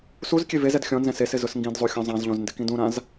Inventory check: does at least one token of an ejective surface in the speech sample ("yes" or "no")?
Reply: no